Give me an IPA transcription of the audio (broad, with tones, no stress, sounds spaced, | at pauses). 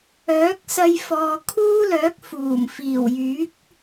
œː˨˥ k̚ s ɐ˧ j f ɔː˨ kʰ uː˥ l œː˨˥ k̚ f uː˨˩ m f iː˨˩ w j yː˨˥ k̚